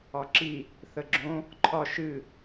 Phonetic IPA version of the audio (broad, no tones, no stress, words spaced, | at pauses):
ɒǁi | θəɡ͡ǁõ | ǃʰɒ ʃɨ